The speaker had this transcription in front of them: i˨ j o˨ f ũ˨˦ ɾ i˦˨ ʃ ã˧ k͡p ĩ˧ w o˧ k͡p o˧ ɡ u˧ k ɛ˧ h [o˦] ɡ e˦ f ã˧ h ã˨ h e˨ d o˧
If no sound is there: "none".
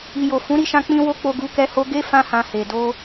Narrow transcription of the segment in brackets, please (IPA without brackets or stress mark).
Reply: o˦